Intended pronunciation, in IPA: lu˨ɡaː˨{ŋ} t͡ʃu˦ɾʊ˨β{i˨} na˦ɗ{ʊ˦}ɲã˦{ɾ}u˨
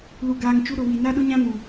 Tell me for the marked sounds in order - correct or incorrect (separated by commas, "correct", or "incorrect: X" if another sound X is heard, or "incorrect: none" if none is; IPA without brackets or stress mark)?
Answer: correct, correct, correct, incorrect: n